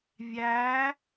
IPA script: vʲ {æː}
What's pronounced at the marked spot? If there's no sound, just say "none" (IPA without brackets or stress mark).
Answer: æː